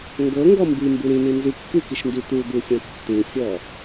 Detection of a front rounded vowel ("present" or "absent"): present